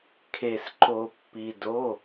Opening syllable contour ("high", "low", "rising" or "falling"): low